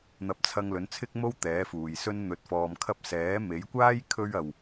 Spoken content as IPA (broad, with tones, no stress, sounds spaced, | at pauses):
n̪ ɐ˧ p̚ t͡sʰ ɐ˧ ŋ l ɵ˨˥ n t͡sʰ ɪ˥ k̚ m o˥ w t̪ ɛː˨˥ f uː˨ j s ɵ˥ n n̪ ɵ˧ t̚ f ɔː˧ m kʰ ɐ˥ p̚ s ɛː˨˥ m e˨˥ j kʷ aː˥ j kʰ ɵ˧ ɥ ɐ˨ w